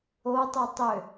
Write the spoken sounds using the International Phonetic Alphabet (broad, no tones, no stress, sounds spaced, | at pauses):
o tˤ u tˤ ø